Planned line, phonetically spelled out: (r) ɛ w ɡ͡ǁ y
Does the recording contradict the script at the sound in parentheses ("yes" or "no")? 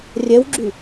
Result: yes